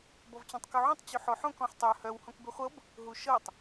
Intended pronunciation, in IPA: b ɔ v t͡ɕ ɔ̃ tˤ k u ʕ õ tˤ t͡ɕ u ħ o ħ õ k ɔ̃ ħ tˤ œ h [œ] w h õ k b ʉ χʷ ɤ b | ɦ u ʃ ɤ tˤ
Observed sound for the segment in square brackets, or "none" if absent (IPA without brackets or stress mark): œ